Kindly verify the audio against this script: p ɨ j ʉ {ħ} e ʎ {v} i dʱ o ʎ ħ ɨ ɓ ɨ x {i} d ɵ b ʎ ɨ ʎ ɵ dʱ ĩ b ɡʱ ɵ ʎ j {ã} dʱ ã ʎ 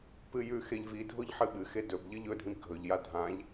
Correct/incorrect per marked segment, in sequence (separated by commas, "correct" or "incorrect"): incorrect, correct, incorrect, incorrect